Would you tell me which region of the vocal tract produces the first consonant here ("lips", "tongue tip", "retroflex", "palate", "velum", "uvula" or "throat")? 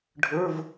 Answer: retroflex